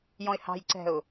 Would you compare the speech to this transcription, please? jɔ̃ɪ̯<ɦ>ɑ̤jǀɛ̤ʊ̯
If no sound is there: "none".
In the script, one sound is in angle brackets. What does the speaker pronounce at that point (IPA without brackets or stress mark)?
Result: h